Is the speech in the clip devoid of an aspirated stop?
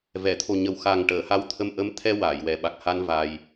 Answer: no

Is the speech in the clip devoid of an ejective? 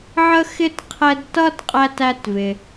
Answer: no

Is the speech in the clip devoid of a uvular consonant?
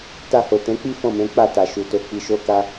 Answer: yes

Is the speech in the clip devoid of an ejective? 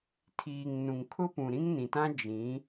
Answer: yes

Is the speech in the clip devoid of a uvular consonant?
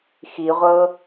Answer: no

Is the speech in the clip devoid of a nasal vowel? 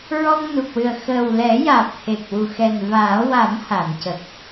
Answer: yes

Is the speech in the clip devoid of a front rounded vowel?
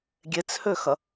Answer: no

